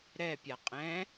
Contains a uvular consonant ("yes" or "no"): yes